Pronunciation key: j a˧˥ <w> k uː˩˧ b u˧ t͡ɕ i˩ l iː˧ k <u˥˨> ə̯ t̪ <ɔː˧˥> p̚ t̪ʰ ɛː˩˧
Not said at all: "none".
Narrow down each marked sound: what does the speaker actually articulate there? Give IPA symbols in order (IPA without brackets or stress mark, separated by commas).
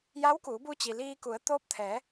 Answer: w, u˩˧, oː˧˥